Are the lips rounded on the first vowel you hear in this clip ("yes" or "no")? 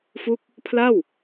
yes